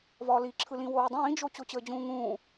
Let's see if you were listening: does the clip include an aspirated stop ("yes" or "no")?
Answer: yes